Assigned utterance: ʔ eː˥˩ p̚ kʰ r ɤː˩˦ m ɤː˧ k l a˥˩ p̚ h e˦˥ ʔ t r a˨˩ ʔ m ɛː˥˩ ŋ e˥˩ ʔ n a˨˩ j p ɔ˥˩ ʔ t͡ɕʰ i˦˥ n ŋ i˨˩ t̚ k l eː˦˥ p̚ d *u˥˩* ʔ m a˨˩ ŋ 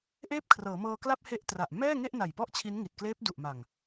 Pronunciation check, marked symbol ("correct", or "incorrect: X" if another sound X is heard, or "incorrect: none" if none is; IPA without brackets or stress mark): incorrect: u˨˩